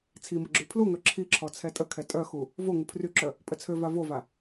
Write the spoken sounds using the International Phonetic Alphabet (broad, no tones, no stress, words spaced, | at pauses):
t͡sʰimə ɡ͡ǁypʰluŋœ ǁʰiǁʰɔ t͡sʰɛtʼəkʰɛ tʼœxu | vo ŋupʰryǁœ | pʼət͡sʰøva vova